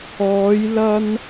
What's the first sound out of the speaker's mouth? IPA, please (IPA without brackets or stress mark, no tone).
ɔː